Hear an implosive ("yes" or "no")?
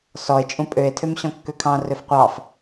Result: no